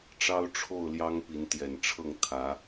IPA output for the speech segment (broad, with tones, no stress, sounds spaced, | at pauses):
ʈ͡ʂ ɑ˦ ʊ̯ ʈ͡ʂʰ o˥˨ ʊ̯ l j ɑ˦ ŋ p i˨˦ n t̪ j ɛ˨˩ n ʈ͡ʂʰ ɤ˥˨ ŋ t̪ʰ ä˨˦